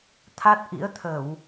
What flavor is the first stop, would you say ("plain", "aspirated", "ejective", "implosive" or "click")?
aspirated